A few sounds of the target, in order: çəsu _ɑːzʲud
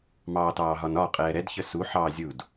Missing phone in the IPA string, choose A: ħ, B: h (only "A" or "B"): A